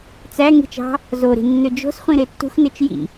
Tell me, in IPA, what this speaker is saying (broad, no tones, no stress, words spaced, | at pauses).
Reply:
t͡sæ ŋi̤t͡ʃɑ̤ | zoɾi̤ nːød͡ʒo̤sχʷĩ ɾetːṳxnet͡ʃ jḭ